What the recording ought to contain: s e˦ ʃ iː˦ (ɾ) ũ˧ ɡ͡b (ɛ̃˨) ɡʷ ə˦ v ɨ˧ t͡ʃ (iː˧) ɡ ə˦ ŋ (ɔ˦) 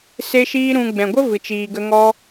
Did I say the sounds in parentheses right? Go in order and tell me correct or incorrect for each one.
correct, correct, correct, correct

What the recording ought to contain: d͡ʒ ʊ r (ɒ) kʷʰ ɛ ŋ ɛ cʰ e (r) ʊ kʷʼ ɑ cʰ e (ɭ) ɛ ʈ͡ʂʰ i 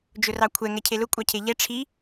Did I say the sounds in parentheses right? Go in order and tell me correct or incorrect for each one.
incorrect: ɑ, incorrect: l, incorrect: ʎ

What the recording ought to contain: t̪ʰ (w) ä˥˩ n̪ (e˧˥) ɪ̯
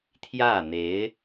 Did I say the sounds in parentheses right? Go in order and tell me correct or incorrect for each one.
incorrect: j, correct

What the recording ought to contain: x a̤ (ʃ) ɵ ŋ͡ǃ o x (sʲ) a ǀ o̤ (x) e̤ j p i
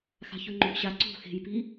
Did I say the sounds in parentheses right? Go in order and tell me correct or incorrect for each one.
incorrect: ç, incorrect: ɕ, correct

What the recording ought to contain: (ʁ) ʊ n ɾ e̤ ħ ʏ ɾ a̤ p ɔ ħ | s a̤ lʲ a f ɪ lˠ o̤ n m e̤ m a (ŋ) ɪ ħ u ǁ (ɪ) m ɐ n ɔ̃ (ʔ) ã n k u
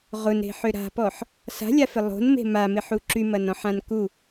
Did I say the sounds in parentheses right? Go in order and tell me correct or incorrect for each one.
correct, incorrect: m, incorrect: y, incorrect: ħ

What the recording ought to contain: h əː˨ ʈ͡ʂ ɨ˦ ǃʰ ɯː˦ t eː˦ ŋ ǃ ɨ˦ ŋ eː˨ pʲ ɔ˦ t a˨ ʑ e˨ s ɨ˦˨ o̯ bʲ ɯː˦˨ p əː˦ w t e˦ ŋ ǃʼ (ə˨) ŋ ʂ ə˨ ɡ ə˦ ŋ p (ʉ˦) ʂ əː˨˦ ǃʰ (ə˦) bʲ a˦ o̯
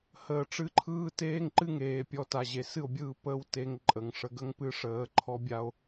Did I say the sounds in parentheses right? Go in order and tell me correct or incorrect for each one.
correct, incorrect: ɨ˦, incorrect: ɔ˦

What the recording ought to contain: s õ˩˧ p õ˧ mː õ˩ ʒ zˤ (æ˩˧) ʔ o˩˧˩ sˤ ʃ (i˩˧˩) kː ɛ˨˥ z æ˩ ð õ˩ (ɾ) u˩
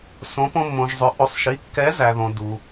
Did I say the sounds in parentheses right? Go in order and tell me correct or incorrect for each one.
incorrect: œ˩˧, correct, incorrect: d

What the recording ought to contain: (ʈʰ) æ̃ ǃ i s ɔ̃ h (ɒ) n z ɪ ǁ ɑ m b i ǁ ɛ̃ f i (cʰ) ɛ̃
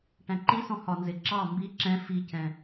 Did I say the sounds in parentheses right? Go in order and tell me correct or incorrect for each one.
incorrect: ʈ, correct, correct

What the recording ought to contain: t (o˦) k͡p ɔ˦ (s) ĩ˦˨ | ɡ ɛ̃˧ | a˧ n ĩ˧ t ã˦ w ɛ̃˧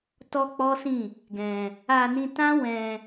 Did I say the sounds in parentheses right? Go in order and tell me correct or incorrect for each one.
incorrect: ɔ˦, correct

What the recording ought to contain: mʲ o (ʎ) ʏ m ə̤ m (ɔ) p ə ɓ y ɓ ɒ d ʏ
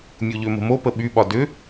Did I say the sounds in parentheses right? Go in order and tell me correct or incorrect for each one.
correct, incorrect: o

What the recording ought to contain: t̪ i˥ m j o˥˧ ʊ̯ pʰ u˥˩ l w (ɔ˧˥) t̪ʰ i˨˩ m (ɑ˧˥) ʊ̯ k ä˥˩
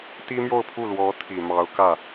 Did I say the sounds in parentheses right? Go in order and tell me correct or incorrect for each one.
correct, correct

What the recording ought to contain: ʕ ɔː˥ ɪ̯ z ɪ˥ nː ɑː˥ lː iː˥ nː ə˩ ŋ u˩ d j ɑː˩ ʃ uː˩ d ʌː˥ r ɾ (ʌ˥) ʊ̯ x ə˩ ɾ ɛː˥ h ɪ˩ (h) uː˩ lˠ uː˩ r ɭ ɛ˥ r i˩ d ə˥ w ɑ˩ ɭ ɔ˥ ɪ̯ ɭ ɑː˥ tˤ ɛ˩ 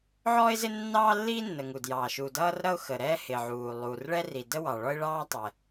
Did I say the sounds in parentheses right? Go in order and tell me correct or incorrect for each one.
correct, incorrect: ʕ

